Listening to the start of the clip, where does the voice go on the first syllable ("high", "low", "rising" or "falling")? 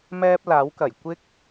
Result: high